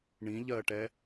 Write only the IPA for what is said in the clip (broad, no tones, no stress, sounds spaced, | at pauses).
ɳ ĩ ʎ ɜ ʈ ɛ